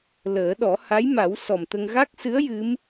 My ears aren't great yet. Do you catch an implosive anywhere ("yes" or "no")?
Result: yes